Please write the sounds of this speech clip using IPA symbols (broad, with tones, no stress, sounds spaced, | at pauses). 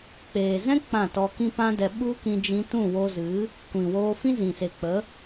k͡p eː˨ z ɛ̃˦ k͡p ã˦˨ t ɔ˧ k ĩ˦ p ã˦ d ɛ˧ ɓ u˦ k ĩ˧ d͡ʒ ĩ˧ t ũ˦˨ w o˧ z ɨ˨˦ | kʷ ĩ˨ w oː˧ f ĩ˦ z ĩ˨ s e˨ k͡p ə˨˦